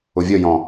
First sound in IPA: ʊ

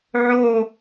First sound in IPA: ʕ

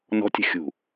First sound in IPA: n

